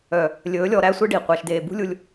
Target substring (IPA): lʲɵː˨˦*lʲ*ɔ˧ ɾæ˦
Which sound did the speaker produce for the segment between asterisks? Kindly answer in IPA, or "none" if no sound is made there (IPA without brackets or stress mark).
lʲ